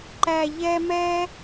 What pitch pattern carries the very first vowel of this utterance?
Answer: high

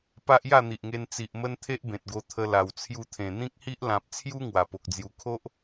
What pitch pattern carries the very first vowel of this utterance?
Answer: high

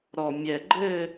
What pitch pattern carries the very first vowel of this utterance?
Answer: low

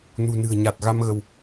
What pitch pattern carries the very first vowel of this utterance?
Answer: low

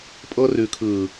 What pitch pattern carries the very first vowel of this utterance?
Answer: high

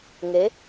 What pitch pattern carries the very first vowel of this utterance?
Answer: rising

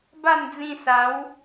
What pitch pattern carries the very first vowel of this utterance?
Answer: falling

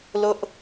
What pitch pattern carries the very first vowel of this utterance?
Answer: high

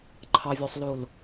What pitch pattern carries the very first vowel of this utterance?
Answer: low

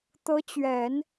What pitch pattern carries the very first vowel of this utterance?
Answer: rising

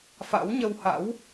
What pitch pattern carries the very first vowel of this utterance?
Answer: rising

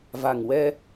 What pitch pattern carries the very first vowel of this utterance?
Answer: low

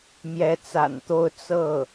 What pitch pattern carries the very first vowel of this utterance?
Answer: rising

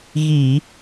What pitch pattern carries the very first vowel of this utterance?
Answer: low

